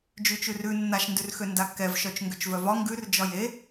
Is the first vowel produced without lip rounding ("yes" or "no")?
no